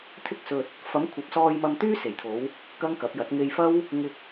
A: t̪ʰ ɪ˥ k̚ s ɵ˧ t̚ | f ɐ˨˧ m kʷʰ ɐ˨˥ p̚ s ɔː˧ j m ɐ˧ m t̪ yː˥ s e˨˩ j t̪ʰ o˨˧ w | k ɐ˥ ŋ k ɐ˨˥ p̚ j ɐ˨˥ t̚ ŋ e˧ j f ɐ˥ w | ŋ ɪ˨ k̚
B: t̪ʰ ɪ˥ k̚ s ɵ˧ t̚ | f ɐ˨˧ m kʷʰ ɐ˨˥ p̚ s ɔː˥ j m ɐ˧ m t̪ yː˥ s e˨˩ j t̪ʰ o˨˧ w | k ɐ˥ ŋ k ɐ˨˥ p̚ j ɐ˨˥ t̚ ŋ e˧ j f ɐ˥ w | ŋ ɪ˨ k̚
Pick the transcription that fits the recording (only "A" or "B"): A